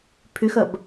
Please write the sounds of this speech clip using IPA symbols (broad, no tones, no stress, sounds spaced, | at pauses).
pʰ ʏ x ɐ b